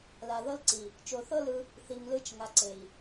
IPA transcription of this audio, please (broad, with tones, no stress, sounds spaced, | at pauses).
l a˨ ð ɤ˦ l ǀ i˨ | t͡ʃ o˨ θ ɤ˦ l ɯ˧ | θ i˨ ŋ l ɯ˧ t͡ʃ ŋ a˨ ǀ e˨ i̯